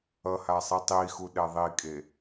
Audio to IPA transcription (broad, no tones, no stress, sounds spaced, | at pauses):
ʌ h a sˤ i tˤ i x u ɗ ɛ ðˤ i kʼ e